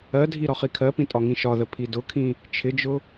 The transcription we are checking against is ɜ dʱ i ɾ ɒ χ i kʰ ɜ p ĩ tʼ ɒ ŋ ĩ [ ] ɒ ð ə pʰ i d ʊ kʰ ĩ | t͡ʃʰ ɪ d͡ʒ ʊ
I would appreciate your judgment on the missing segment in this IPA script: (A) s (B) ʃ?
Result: B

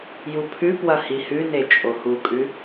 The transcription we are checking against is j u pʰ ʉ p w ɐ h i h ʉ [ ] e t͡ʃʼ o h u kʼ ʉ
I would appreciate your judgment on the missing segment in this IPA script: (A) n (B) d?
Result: A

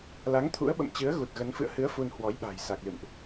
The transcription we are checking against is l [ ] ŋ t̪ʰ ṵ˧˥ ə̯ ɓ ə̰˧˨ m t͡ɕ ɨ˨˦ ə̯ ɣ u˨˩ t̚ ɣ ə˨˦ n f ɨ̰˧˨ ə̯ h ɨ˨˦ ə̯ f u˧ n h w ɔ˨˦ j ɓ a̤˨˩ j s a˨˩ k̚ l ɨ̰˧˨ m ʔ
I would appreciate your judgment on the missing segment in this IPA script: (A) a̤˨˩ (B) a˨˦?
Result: B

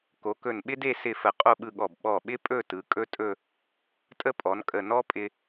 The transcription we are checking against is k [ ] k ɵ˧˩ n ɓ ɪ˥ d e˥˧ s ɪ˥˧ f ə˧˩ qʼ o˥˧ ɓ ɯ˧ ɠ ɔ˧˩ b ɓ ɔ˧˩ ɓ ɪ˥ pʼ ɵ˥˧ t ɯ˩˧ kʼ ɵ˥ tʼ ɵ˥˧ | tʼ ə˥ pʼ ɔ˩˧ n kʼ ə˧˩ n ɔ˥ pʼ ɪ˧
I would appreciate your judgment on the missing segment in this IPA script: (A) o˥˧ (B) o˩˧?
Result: B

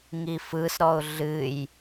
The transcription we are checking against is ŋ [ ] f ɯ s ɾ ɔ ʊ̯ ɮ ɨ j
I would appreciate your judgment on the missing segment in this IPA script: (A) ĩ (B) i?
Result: B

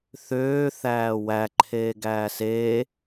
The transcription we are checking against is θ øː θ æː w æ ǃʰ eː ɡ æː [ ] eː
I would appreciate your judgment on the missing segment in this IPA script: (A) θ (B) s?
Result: B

